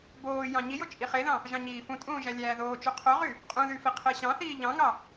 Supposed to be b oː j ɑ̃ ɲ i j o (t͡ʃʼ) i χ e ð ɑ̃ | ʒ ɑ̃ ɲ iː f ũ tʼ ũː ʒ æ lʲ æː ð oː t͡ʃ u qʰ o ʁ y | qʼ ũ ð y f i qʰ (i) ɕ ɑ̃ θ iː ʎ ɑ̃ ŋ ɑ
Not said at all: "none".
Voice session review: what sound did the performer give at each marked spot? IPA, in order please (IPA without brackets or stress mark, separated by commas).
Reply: t͡ʃʼ, e